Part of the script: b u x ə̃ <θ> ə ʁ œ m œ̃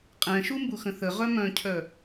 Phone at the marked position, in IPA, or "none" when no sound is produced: θ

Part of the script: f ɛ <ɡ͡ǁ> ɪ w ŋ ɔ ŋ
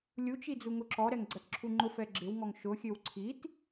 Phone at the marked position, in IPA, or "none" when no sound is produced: ɡ͡ǁ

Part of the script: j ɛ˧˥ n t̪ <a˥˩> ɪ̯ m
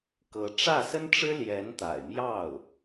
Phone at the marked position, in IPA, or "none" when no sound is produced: a̰˨˩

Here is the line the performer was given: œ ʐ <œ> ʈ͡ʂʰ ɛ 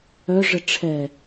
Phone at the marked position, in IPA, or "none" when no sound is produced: ə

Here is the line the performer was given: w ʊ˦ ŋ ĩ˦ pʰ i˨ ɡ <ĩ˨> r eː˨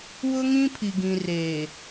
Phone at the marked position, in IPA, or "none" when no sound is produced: ĩ˨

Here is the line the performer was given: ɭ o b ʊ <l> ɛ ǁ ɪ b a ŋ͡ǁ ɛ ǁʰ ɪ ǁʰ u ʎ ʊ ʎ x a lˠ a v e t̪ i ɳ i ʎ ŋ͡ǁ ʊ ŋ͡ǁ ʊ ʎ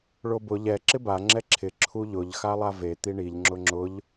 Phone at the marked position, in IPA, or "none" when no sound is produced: ʎ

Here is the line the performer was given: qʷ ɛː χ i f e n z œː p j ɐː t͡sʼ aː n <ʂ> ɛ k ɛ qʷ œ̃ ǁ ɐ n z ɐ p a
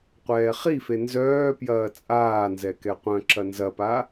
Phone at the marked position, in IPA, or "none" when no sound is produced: z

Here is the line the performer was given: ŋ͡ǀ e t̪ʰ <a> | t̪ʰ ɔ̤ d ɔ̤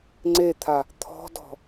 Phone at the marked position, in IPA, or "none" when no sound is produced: a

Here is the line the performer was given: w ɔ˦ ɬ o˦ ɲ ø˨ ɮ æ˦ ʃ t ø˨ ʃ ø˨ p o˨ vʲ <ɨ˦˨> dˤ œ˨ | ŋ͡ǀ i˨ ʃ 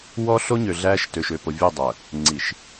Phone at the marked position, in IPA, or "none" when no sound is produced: ʉ˦˨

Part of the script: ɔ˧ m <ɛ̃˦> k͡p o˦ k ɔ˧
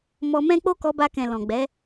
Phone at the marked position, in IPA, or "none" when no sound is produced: ɛ̃˦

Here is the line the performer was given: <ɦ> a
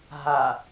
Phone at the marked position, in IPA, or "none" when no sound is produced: ɦ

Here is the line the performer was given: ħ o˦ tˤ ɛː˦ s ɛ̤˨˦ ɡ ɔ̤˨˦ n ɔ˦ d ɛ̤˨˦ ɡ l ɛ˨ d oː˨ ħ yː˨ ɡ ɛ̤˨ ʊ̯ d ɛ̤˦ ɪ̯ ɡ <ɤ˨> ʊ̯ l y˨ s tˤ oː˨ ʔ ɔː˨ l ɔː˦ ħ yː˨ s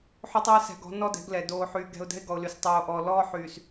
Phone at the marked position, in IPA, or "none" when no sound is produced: ɔ˨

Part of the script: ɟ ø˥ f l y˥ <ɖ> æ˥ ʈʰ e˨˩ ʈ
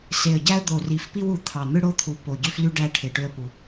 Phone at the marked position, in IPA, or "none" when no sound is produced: ɖ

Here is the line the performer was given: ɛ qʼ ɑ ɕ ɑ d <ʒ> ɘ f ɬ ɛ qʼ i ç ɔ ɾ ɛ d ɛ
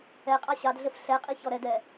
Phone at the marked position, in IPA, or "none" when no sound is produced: ɮ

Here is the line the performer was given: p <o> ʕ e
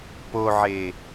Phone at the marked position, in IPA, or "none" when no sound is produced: o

